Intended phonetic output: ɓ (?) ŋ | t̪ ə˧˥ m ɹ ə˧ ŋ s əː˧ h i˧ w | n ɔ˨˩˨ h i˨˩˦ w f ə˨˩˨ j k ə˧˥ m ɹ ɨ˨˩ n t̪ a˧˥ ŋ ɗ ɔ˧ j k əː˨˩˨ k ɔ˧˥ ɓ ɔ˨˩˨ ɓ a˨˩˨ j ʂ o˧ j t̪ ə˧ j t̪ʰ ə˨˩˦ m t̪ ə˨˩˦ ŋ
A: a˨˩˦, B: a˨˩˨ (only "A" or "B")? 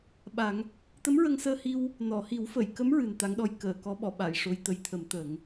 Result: A